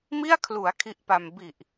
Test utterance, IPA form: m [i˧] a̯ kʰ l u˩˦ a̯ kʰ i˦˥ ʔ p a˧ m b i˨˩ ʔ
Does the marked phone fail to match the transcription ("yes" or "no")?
yes